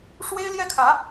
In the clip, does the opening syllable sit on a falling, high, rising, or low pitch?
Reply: high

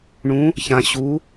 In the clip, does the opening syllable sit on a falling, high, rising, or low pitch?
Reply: rising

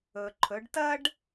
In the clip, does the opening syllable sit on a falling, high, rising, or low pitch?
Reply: low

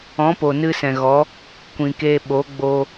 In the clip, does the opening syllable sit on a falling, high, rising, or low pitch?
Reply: rising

